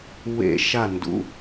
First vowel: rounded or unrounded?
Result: unrounded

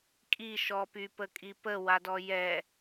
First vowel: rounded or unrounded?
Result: unrounded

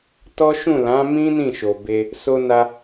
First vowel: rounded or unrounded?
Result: rounded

